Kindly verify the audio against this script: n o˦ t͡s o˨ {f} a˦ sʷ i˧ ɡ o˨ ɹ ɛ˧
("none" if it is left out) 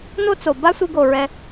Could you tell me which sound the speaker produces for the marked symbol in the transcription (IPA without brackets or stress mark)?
b